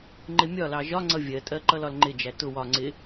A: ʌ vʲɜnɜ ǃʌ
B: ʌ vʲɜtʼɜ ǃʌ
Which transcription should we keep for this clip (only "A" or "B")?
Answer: B